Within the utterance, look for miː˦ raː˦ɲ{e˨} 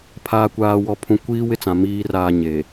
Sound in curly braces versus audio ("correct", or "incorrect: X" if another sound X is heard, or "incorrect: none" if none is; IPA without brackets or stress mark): correct